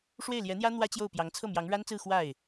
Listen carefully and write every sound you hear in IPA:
ʂwe˥˩ɪ̯ljɛ˧˥n̪jä˥ n̪wä˥t͡ɕjo˥˩ʊ̯pjɑ˧˥ŋ t͡sʰɤ˥˩mjɑ˧˥ŋɻa˥nt͡sɹ̩˥˧ xwa˥˩ɪ̯

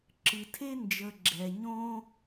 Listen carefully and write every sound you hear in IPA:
ǁɨ˩tʰe˥ nd͡ʒə˨ɡ͡ǁɛ˩ɲõ˥

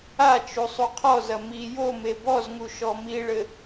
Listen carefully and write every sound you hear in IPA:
a t͡ʃusˤuqʰɔzɐ mi jome bɔzŋu ʃɔmiɭɘ

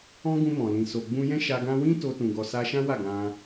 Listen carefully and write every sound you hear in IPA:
ɔ̃˦ɡũ˧mɔ̃˨lĩ˨ so˨ ɡ͡bũ˧jɛ̃˦ʃa˧ ɡã˧wĩ˦ to˧tũ˨ɡɔ˨ sa˧ʃã˦wa˦˨ ɡã˧

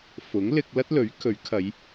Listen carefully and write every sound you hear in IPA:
fʊ˨˥ŋ lɪ˧k̚lɐ˥t̚lɵ˨˥ɥ kʰɵ˨˥ɥ kʰɐ˨˧j

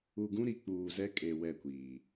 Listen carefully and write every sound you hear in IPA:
u˨ɡũ˦ɾi˨ k͡puː˨zɛ˦kʼe˨ wɛ˦˨kʷiː˨

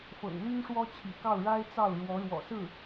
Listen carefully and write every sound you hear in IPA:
fɤ̰˨˩ŋ ly˥nʂwɔ˥t͡ɕʰḭ˨˩kɑ˥˩ʊ̯ ɻa˥ɪ̯t͡sɑ˥˩ʊ̯ ɻwɔ˧˥ɻwɔ̰˨˩ sɹ̩˥˩

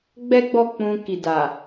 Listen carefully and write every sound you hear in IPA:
ɡ͡bɛ˦ɡ͡bɔ˦˨ k͡pũ˧ki˨da˨

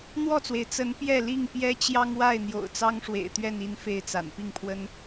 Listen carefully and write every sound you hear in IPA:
n̪wɔ˥˨t͡swe˩ɪ̯ t͡sə˨˦n pjɛ˥˨li˥˨ŋ pjɛ˦t͡ɕjɑ˦ŋ wa˥˨ɪ̯n̪jo̰˨˩ʊ̯ t͡sɑ˦ŋʂwḛ˨˩ɪ̯t̪ɥɛ˥˨ni˥˨n fe˥˨ɪ̯t͡sa̰˨˩n pi˥˨ŋpʰwə˦n

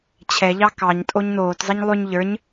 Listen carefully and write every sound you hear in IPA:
t͡ɕʰɛʎɑ kɑɲtʼoɲ noːtzˤiɲ lˠʉɲ ʎə˞ɲ

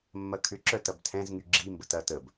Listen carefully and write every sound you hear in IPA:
mːɐkʰʏǁœ tɐbtʰɛ̃zŋy ɡ͡ǁimbət ɐt əb

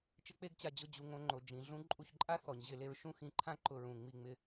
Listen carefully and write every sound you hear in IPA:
t͡ʃɪ˦k͡pe˦ɡt͡ɕa˧ d͡ʑʊ˦d͡ʑu˧ ŋõ˧ŋ͡ǃo˨ d͡ʒĩ˨ ɮũ˦ ǃʼu˧çǃʼa˦ θɔ˨ɲʑɪ˧ le˧ɹ ʃũ˦xĩ˧ǃʰã˦ ǃʊ˧ɹũ˨ ŋ͡mi˧ŋ͡mɪ˧

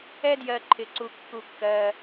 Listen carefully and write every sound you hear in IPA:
ɛ˦djɜ˨ǃʰɪ˩ ǀu˩kːu˩kːɜ˩

